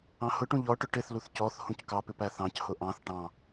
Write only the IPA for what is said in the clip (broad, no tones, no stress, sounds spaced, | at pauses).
ɑ̃ h ʊ ʈ ũ ʎ ɔ ʈ ʊ ʈ ɪ θ l u θ c ɔ θ h ũ c k ɑ p ɪ p æ θ ɑ̃ c h ʊ ʔ ɑ̃ θ ʈ ɑ̃